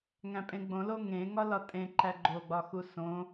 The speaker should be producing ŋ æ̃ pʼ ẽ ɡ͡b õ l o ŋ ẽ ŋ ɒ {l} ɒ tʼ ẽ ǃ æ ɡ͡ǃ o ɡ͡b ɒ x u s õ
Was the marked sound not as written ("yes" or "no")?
no